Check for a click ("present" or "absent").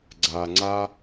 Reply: present